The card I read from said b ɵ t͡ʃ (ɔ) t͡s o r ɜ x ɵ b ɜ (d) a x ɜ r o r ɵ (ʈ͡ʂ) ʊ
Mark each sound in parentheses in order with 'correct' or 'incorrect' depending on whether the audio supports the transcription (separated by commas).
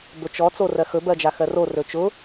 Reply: correct, incorrect, incorrect